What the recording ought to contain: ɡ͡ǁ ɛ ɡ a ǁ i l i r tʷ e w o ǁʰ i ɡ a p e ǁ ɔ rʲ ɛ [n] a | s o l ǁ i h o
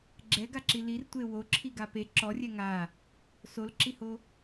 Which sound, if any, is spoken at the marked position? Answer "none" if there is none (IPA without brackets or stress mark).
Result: ŋ